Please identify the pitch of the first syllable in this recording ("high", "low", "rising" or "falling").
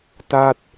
falling